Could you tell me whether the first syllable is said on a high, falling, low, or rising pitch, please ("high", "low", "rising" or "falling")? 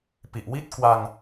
low